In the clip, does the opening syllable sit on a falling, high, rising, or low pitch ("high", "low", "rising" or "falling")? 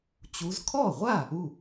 rising